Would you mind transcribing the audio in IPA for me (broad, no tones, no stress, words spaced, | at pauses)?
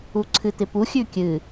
uǀʰɨt̪ɪpu xʲʉkʲɨ